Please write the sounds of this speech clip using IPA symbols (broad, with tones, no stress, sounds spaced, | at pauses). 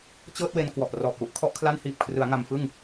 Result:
t͡ɕ ɤː˥˩ t̚ w e˧ n k w ɔ˨˩ ʔ r ɔː˨˩ p̚ w u˨˩ ʔ kʰ ɔ˥˩ ʔ kʰ l a˥˩ n h iː˨˩ p̚ kʰ r ɯ˩˦ a̯ ŋ a˧ m f ɯ˥˩ ŋ